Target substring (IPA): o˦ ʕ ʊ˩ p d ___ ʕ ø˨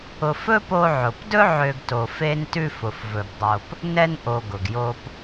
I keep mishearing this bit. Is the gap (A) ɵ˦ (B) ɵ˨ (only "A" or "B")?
A